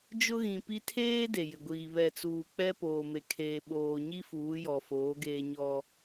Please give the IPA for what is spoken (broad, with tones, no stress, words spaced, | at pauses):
d͡ʒʊ˦ɣĩ˨pi˦ tʰeː˦ de˨jɪ˨ɡʷiː˨ βɛ˨t͡suː˨k͡pɛ˦ poː˨me˨ kʰeː˨ɓoː˨ɲi˦ fuː˨˦jɔ˨foː˨˦ɡeː˦ ɲɔ˦